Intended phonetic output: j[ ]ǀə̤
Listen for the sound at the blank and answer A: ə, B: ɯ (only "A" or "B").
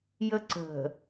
A